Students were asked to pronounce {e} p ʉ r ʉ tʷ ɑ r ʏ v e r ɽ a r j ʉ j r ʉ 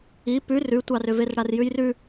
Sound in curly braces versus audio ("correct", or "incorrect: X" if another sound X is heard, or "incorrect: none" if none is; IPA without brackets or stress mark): incorrect: i